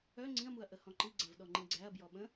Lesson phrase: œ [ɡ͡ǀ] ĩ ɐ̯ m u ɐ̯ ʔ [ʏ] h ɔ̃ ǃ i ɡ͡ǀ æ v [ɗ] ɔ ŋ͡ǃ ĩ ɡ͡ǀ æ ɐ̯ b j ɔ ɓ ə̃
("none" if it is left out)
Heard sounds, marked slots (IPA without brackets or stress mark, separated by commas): ŋ͡ǀ, ə, ɗ